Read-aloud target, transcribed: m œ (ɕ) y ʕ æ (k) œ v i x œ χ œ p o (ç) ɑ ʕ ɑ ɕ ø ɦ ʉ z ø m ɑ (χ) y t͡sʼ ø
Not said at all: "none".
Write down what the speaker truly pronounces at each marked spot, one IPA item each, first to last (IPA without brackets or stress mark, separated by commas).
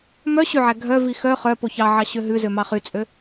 ɕ, ɡʱ, ç, χ